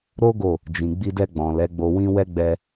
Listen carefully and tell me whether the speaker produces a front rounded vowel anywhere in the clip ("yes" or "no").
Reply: no